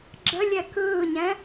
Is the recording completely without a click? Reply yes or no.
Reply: no